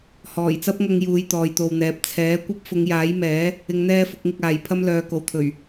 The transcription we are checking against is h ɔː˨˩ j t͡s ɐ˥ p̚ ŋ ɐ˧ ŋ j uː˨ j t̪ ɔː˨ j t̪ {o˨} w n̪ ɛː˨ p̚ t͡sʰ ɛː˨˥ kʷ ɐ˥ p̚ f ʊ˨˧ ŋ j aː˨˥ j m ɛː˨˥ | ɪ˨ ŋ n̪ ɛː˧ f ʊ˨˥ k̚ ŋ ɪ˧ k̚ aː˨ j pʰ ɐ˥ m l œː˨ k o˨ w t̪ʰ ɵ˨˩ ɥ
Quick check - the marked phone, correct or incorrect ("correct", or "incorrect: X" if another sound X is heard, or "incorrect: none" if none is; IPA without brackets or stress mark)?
correct